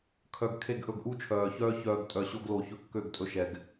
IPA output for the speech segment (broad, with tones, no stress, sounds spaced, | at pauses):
kʰ œ˨ ɡ kʰ e˦˨ ɡ ʔ ɵ˧ ɡ ʔ u˦ t͡ʃʰ œː˨ ç œː˦ ç œː˨ ɡ tʼ œ˨ ɕ o˧ ɡ l o˨ ç ɵ˧ kː ø˦˨ ɡ tʼ ɵ˧ ʃ ɛ˨ ɡ